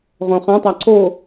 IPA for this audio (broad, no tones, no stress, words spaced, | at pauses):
ʁõχãtˤa ǀo